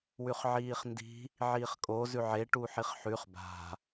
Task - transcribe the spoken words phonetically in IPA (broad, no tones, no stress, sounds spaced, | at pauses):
w ʉ χ ʕ iː χ n d i̤ | ʕ iː χ kʼ o z ʉ ʕ e ʈ u ħ i χ ħ ʉ χ b a̤